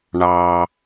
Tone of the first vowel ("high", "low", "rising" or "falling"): low